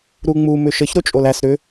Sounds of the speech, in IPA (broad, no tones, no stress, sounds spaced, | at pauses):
ɾ u ŋ͡m u m ʏ ʃ ə ç ɾ o t͡ʃʼ o l æ s ɾ ʏ